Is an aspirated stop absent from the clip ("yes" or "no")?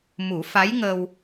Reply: yes